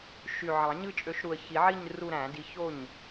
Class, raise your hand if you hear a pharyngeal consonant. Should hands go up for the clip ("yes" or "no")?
yes